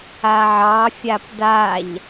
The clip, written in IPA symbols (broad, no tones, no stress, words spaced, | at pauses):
aʕɑ fʲapdaʎ